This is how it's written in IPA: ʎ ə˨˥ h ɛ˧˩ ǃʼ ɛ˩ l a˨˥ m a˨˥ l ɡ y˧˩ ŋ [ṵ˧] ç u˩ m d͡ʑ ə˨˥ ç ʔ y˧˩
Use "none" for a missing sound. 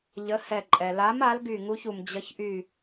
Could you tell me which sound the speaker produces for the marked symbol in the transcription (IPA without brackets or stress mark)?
u˧